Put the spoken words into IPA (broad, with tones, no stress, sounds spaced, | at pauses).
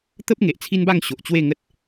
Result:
t̪ ə˦ p̚ ŋ e˨ ʔ t͡sʰ i˦ n b a˥˧ ŋ ɕ o˨ ʔ t͡ɕ w e˥˧ ŋ ə˦ t̚